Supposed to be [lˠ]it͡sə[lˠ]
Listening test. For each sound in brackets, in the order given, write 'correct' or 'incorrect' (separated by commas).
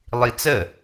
correct, incorrect